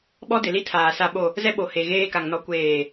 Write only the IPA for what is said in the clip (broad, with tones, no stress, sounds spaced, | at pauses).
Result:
ɓ ɔ˦ d ɪ˨ l i˦ tʰ aː˨ s a˦ ɓ o˦˨ | z ɛ˦ ɓ o˨ h e˨ ɣ eː˦ k a˨ ŋ n ɔ˦ kʷ eː˦˨